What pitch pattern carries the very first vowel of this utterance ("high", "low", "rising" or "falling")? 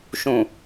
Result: low